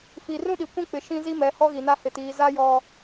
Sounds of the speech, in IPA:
fi˨ rũ˦ɗi˨ kʷĩ˦k͡pɪ˨ ʃĩ˦zi˦mɛ˨˦ hɔ˦ɣi˨na˦ hɪ˨tiː˨ za˦jɔ˨

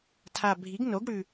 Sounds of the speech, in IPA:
tʰa˨˩bʱi˩˥ɡ no˩˥ɡɽʉ˨˩

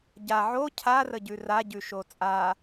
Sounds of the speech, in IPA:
ɟa ʕo cʰarəɟʉ raɟʉʃo t͡sʼa

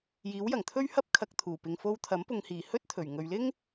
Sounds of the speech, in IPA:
jiː˨˥wjɐ˨˩ŋt̪ʰɵ˥ɥhɐ˥p̚ kʰɐ˨k̚ t̪ʰuː˨˩pɪ˨ŋ fo˧wt̪ʰɐ˨˥m pʊ˨ŋhiː˨˩ hɵ˥t̚t̪ʰɵ˨˩ɥ ŋɵ˨ɥlɪ˥ŋ

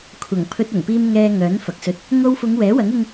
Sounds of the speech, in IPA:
kʷʰɐ˨˩ŋpʰɵ˧t̚ ʊ˨˩ŋpiː˧m ŋɛː˧ ŋœː˨˥n fɐ˨k̚sɵ˧t̚ | ŋo˧wfʊ˨˧ŋ wɛː˨˥wɐ˨˥ŋɪ˧ŋ

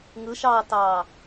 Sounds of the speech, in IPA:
ŋɯʃɑːtɑː

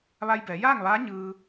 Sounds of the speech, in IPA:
ʋa˧jbɛː˩˧jaː˥˨ŋʋaː˧˥ ɲɯː˧

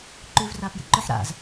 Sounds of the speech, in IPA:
ǃʉːvraːpjḭǃɵħ ɾa̰z

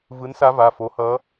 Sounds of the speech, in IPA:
vɯ˧˥nsa˧˥va˩˧˩ fo˧˥hʌ˧˥

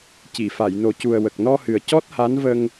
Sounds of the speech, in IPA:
ci˨˩˨fa˨˩˨jno˨˩cu˨˩ə̯ wə˨˩k̚nɔ˧hɨ˨˩ə̯ cɔ˦˥t̚ha˧˥nvə˧ŋ

